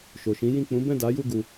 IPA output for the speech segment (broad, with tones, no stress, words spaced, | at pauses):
ʃo˨ʃĩ˨˦ jĩ˦˨ k͡pũ˨˦bɛ̃˦˨da˨˦ju˦˨ ɡu˧